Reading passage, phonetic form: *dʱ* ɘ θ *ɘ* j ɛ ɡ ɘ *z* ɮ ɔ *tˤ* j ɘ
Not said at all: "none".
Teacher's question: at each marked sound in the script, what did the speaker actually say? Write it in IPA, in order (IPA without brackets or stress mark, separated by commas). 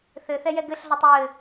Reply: θ, ɛ, ɬ, tˤ